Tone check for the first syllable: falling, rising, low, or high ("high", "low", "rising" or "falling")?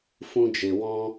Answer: high